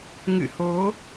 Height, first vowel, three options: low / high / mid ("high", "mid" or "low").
high